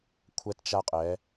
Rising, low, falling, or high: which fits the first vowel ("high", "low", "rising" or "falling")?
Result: high